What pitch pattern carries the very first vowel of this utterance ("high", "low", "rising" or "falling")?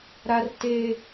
high